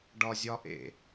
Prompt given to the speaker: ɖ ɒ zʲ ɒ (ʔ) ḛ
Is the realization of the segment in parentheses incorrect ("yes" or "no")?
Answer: no